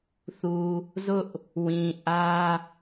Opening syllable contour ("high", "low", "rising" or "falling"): low